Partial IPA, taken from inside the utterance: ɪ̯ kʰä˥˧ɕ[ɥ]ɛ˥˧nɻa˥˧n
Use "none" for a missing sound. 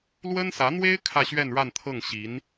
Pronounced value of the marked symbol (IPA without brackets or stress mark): ɥ